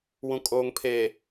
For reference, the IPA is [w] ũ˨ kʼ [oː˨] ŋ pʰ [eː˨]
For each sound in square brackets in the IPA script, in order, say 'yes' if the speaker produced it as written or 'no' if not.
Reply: yes, yes, yes

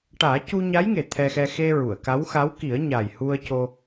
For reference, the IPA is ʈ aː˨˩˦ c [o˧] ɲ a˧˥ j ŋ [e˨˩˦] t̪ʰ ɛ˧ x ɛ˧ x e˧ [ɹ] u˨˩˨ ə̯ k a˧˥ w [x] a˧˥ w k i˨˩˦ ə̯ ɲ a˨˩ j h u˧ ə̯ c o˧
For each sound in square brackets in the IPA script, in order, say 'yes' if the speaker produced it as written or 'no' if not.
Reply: no, no, yes, yes

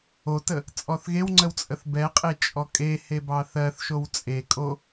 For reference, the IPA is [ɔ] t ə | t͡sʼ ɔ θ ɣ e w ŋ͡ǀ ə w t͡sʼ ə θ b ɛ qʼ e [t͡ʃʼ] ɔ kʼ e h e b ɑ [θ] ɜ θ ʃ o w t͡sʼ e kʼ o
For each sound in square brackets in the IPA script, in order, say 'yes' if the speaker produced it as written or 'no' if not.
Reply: no, yes, yes

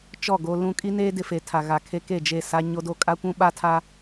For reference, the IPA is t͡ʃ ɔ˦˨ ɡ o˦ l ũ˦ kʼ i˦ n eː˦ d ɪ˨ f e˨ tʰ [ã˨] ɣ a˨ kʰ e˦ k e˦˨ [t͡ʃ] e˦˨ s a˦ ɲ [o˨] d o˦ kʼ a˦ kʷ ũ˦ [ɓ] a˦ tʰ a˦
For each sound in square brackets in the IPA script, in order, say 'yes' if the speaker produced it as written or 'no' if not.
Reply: no, no, no, yes

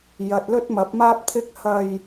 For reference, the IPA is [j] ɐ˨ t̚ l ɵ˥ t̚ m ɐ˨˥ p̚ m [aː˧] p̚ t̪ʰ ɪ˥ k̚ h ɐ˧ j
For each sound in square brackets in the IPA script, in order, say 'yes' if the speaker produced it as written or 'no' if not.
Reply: yes, no

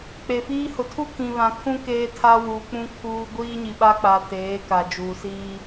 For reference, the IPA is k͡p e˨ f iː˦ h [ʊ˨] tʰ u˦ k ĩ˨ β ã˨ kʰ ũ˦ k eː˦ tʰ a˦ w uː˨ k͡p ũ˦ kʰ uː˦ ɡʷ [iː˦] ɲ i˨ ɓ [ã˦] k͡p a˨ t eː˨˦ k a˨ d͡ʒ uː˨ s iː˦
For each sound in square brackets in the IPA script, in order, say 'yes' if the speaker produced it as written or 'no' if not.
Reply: yes, yes, no

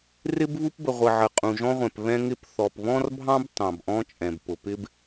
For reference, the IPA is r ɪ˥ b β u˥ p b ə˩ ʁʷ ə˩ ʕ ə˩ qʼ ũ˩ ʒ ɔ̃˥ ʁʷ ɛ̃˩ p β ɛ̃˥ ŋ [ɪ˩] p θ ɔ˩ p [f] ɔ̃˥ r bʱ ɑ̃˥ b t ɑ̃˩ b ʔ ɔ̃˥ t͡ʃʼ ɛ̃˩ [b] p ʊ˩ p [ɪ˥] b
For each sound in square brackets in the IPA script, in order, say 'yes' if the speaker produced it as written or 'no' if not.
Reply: no, no, yes, yes

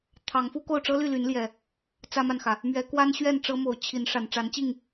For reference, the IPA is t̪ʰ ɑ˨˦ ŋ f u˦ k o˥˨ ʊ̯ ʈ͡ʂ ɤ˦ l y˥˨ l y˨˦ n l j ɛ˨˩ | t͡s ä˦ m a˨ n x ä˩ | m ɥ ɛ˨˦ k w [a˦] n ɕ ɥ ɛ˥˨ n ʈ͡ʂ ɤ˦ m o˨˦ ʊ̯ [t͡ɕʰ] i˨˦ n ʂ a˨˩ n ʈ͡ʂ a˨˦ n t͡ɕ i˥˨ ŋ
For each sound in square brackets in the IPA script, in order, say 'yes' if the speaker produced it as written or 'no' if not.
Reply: yes, yes

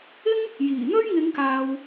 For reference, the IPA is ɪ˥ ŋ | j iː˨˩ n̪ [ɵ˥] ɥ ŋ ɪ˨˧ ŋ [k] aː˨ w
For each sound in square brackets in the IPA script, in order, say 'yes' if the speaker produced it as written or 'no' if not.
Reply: yes, yes

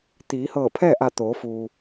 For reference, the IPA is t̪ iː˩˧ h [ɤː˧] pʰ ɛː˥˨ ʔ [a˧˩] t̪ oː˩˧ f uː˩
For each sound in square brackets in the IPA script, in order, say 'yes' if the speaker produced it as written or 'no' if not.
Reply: no, yes

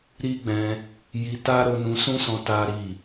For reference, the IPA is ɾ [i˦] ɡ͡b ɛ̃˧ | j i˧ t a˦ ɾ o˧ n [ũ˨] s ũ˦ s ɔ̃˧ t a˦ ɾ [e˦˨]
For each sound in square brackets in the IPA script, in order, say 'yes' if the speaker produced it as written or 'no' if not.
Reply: yes, no, no

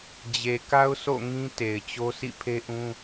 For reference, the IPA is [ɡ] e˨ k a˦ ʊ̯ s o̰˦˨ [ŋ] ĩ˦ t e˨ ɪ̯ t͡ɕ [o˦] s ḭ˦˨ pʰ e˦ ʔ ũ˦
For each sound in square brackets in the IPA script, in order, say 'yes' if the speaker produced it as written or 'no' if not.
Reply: no, yes, yes

